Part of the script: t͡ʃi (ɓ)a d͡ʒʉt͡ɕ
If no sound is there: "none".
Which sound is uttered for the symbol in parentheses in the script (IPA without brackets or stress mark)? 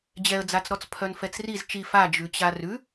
f